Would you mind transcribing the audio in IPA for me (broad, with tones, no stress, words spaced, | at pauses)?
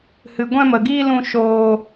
hɨ˧ɡʷɛ̃˦mə˧ɡiː˦ lũ˦ʃoː˦